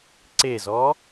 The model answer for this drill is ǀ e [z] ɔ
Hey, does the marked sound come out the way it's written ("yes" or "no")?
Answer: yes